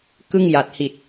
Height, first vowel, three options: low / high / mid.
high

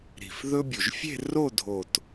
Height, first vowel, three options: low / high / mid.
high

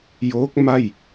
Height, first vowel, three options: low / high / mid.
mid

